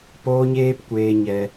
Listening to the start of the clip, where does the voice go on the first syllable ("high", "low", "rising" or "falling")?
high